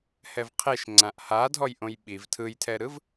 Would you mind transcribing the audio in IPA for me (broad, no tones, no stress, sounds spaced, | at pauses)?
h ɛ v qʰ e ʃ ŋ͡ǀ ã ʔ h a dʱ ɔ j ʔ õ j ɓ i v tʰ ɯ j tʰ ɛ ɾ ɯ v